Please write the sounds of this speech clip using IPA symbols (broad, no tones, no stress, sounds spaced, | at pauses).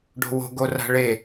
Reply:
ɖ o̤ w o̤ ɡ o r a̤ ɭ e